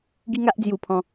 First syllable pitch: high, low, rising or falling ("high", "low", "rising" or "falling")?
high